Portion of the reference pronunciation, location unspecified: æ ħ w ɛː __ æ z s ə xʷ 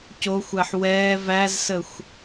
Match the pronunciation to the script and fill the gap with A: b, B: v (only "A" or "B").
B